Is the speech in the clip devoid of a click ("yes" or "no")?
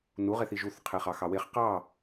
yes